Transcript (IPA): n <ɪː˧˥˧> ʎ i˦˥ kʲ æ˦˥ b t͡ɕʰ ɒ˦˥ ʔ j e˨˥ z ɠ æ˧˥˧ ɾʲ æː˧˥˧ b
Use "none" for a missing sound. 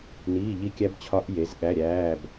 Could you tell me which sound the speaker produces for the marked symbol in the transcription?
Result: iː˧˥˧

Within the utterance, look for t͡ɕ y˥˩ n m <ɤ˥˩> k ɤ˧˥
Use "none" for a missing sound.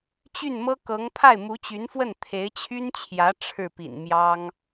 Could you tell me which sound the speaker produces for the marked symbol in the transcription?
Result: ɤ˥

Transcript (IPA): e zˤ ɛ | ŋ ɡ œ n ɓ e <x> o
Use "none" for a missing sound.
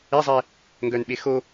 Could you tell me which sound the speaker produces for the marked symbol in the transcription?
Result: x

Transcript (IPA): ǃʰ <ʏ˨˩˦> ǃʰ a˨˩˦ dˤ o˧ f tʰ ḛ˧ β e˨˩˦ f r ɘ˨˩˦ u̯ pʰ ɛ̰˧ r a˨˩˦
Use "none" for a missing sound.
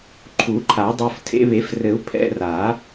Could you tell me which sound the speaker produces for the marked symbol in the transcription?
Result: u˨˩˦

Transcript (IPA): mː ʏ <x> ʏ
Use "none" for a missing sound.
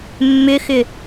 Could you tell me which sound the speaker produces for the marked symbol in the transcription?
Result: x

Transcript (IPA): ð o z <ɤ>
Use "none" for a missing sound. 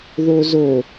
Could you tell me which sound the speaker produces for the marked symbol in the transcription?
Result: o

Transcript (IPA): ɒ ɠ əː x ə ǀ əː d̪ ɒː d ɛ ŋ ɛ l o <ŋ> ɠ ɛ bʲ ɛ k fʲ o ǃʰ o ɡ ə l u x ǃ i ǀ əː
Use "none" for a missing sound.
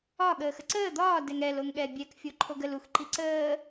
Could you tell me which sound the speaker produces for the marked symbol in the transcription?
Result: ŋ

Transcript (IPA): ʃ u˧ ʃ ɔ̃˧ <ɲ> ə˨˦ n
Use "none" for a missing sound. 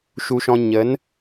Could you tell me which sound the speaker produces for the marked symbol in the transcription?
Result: ɲ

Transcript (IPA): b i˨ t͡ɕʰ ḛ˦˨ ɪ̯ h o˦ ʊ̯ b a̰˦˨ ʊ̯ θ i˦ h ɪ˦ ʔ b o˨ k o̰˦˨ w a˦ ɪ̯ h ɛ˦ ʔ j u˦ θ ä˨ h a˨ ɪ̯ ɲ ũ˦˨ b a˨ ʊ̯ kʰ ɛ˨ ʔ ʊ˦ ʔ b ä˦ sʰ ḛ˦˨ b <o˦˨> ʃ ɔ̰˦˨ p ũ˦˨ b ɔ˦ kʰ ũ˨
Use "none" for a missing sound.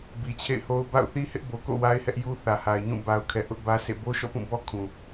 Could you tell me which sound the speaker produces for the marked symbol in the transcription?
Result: o˦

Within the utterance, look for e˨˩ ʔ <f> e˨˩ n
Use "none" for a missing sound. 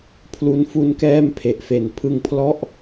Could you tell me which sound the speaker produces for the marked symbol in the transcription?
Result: f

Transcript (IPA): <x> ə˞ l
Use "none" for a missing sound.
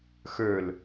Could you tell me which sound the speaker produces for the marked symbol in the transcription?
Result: x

